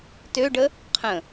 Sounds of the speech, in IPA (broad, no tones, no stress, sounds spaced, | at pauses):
t ø ɖ ə | qʰ ə̃